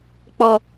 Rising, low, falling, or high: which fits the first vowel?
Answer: low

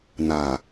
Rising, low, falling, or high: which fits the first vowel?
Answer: low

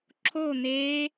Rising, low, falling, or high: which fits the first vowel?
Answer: falling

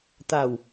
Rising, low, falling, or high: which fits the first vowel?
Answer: low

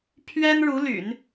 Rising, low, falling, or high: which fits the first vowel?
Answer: high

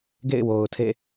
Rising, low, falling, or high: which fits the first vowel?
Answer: falling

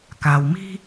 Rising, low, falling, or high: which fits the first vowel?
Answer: low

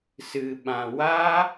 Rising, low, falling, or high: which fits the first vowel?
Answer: low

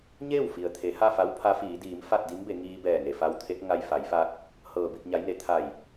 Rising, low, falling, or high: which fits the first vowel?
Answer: falling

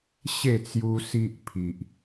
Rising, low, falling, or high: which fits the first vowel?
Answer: falling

